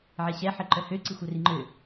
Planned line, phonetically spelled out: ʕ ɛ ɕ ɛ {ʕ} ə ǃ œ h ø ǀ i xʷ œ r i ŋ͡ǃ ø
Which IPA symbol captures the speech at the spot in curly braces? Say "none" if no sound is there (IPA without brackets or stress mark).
ħ